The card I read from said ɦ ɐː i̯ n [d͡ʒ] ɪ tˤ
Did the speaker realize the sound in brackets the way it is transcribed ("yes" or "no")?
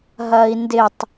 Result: no